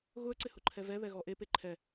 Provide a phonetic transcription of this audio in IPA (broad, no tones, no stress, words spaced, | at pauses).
ɣʊə̯ǀɪ hʊǃʰɛvɛβɛ ɣɔʔepe ǃʰɛ